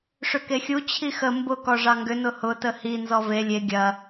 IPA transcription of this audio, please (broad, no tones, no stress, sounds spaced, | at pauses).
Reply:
ʂ ʏ k e xʲ u t͡ɕʰ i x ə m b ʊ k ɔ ʐ ɑ ŋ ɡ ʏ n ʊ h ʊ t ə h i n z ɔ v e lʲ e ɡʲ ɐ